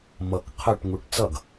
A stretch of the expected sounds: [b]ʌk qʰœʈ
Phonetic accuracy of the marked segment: incorrect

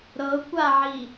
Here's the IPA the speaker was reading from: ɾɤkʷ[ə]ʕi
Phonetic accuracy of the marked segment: incorrect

